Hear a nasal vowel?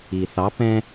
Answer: yes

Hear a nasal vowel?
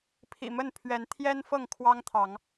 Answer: no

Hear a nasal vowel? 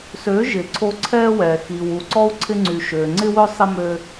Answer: no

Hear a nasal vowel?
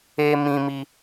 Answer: yes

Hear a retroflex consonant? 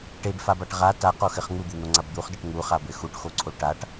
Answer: yes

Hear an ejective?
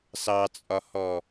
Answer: yes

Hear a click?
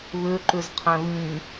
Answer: yes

